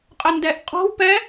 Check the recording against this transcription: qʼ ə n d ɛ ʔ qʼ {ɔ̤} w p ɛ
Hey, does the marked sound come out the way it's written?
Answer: yes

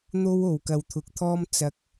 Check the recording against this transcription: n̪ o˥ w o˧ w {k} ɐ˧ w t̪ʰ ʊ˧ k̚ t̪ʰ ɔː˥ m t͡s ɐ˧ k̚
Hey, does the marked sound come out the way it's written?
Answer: yes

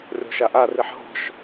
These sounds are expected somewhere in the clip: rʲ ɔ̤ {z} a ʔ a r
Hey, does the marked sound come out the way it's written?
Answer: no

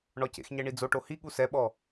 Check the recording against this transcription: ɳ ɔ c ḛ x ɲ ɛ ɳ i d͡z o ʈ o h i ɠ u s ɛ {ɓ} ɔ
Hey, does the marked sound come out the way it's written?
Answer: yes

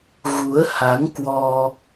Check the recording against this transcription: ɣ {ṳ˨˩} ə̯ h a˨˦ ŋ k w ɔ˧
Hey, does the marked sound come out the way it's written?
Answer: no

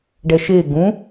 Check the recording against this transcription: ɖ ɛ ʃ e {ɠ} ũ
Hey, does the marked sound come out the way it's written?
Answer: no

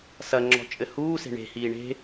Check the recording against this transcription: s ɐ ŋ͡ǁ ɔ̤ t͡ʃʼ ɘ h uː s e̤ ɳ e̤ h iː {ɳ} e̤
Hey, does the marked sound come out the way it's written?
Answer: yes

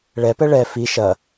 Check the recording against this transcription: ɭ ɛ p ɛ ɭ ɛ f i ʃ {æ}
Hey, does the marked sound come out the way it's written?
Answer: no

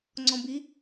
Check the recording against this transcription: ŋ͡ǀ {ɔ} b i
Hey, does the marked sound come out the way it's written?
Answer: no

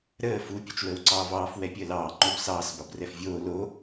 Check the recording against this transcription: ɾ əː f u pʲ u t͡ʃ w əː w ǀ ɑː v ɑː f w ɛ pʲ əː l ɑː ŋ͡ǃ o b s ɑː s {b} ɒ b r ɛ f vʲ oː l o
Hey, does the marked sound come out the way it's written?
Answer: yes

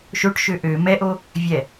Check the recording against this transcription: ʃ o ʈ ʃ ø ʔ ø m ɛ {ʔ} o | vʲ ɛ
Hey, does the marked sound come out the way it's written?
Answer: yes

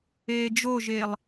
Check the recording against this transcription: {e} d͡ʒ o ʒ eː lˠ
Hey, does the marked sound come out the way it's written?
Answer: no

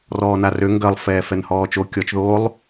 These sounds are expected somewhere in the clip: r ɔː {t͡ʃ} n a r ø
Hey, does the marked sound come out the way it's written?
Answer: no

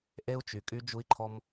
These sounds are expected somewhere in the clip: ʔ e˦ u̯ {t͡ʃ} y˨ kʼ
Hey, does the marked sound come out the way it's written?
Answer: yes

